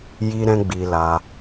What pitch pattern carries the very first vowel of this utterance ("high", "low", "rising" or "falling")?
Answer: high